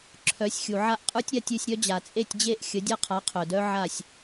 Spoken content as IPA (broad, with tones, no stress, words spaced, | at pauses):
ǁʰœ˨˥sʲxʲu˨ʕa˥ʔ qʼə˞˥tʲɾʲa˥˨tʲʉ˥˨sʲɾʲœ˥ d͡ʑa˨t͡sʼe˥˨tʲd͡ʑe˥˨ʔ xʲə˨˥ dʲa˥qʰa˨˥qʰœ˨dœ˥ ʕa˥˨sʲ